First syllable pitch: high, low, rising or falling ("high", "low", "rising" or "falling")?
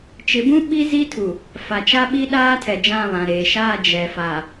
rising